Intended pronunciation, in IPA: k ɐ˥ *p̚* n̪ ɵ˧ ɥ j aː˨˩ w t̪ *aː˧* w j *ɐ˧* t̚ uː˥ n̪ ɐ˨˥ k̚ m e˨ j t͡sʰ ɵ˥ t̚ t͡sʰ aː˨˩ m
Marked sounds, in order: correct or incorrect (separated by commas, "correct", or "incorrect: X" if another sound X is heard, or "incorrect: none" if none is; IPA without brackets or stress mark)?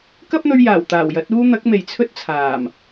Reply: correct, incorrect: aː˨˩, incorrect: ɐ˨˥